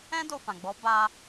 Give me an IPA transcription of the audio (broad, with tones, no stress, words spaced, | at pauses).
ɛ̃˦do˧fã˨ɡ͡bɔ˨˦ ba˧